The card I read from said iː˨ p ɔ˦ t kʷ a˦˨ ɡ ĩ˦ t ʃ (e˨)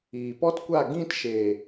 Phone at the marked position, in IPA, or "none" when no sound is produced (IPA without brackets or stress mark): e˨